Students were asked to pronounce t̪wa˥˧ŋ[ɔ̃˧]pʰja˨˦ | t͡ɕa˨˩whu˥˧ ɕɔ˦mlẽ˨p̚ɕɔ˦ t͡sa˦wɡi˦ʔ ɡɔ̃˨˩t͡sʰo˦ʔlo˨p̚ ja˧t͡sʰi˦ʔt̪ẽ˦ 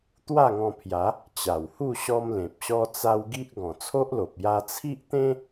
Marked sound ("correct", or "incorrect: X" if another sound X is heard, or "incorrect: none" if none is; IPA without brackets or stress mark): correct